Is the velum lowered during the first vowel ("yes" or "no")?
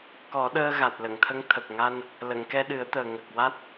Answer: no